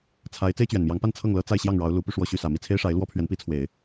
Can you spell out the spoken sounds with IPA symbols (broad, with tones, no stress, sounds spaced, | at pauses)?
t͡sʰ a˧˥ ɪ̯ t͡s e˥ ɪ̯ t͡ɕ ɥ ɛ˨˩ n m j ɑ˧˥ ŋ p a˥˧ n t͡sʰ ɤ˥˩ ŋ l ɤ˥ t͡s a˥˧ ɪ̯ ɕ j ɑ˥˩ ŋ ɻ ɑ˧˥ ʊ̯ l u˧˥ p y˧ ʂ w ɔ˥˧ ɕ y˥˩ s ä˨˩ m i˥˩ t͡sʰ e˥ ɪ̯ ʂ a˧˥ ɪ̯ l w ɔ˥ pʰ ɥ ɛ˧˥ n p i˧˥ t͡sʰ w e˨˩˦ ɪ̯